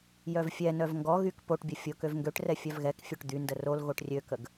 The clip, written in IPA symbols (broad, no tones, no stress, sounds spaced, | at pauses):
j œ v fʲ ɛ n œ v ŋ ɡ ɔ ɣ y k p o ʈ bʲ ɐ fʲ ʊ k ø v ŋ ɡ ø ʈ r ɛ fʲ œ v ɣ ɛ k fʲ ø ʈ d̪ y n d ə r o l ɣ o ʈ rʲ ø k ə ɡ